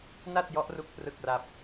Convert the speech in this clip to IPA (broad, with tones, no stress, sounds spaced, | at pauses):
n a˥˩ t̚ j ɔ˦˥ ʔ r u˦˥ k̚ p r ɯ˥˩ k̚ r a˥˩ p̚